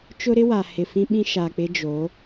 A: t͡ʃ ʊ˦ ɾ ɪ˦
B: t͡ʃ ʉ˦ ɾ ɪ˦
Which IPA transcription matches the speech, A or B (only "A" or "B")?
A